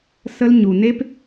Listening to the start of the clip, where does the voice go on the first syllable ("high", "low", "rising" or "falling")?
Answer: high